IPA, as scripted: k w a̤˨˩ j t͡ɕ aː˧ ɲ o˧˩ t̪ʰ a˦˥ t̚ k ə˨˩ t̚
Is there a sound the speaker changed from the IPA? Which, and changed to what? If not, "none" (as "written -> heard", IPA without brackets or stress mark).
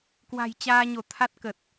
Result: none